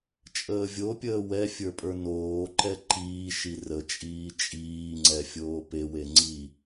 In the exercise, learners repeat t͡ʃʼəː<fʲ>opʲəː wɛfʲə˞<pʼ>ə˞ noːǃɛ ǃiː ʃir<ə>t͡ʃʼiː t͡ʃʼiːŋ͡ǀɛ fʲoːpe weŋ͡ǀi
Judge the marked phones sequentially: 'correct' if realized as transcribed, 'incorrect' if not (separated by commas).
incorrect, correct, correct